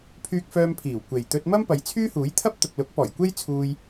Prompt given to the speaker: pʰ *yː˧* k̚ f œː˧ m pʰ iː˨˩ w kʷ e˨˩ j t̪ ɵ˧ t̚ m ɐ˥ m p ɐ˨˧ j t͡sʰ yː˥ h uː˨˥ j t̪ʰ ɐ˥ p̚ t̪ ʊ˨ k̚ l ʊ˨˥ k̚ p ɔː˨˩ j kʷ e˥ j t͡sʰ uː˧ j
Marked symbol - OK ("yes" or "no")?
yes